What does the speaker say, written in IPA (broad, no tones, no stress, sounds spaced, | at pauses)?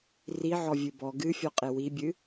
r i ʕ ɔ vʲ ɨ b ɔ ɡ ɨ fʲ ɔ qʼ e w i bʲ ɨ